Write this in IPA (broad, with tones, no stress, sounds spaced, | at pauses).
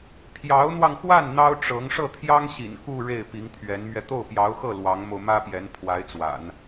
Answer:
pʰ j ɑ˧˥ ʊ̯ n̪ w ɑ˧ ŋ x w a˥˩ n n̪ ɑ˥ ʊ̯ ʈ͡ʂ ɤ˧˥ ŋ ʂ ɤ˥˩ t̪ʰ j ɑ˥ ŋ ɕ ḭ˨˩ n k u˥˧ ɻ e˥˩ ɪ̯ p i˧˥ ŋ t̪ʰ ɥ ɛ˧˥ n m ɥ ɛ˧ t̪ o˥˩ ʊ̯ p j ɑ˧˥ ʊ̯ x ɤ˥˩ l w ɑ˧˥ ŋ m o˧ ʊ̯ m ä˥ p j ɛ˧˥ n pʰ w a˧˥ ɪ̯ t͡s w a̰˨˩˦ n